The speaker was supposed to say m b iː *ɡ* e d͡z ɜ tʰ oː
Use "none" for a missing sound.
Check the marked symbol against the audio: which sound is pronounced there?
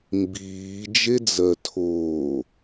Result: d͡ʒ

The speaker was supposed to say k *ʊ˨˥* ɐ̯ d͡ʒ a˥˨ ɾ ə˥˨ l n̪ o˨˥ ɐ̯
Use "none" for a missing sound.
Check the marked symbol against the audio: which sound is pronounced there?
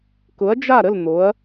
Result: ʊ˨˥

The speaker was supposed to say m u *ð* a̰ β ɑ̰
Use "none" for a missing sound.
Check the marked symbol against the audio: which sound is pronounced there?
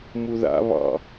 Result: ð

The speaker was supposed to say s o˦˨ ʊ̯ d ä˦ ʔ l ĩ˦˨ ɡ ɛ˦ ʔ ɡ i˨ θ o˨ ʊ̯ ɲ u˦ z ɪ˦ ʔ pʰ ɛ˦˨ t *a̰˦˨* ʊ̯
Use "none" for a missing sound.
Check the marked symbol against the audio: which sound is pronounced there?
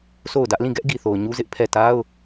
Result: a˦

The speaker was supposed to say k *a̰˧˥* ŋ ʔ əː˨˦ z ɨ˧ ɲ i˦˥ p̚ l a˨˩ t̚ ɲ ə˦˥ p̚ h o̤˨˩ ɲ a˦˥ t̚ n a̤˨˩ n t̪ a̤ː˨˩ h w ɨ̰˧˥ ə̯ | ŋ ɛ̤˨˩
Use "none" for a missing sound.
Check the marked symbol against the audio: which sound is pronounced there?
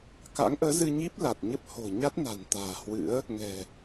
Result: a̰˧˥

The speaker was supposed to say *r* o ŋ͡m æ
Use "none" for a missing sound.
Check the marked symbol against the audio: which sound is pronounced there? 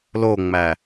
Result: l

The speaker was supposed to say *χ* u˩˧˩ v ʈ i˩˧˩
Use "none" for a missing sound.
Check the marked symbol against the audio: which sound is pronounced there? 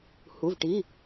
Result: h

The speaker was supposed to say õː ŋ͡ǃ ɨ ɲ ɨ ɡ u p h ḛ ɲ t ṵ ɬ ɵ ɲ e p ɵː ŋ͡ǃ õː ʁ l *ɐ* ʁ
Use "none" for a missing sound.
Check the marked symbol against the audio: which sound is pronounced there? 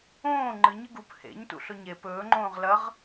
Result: ɐ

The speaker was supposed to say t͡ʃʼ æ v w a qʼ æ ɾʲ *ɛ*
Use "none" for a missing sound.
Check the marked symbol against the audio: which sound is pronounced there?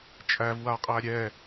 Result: ɛ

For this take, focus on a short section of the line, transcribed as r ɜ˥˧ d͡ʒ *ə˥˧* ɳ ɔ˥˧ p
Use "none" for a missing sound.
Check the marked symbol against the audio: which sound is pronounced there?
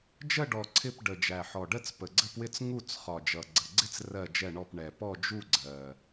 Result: ɛ˥˧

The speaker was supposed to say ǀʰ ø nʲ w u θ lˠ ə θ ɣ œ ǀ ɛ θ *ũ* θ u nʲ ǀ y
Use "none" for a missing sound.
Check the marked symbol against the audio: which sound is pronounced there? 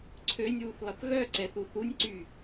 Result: u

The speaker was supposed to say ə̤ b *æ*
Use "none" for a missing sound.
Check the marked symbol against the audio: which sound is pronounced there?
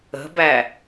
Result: æ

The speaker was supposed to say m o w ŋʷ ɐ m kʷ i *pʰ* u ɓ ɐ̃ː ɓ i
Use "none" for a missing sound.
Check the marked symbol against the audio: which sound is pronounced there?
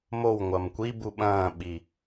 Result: b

